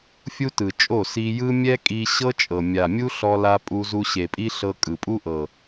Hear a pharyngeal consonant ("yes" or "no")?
no